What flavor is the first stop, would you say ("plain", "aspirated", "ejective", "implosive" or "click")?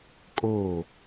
ejective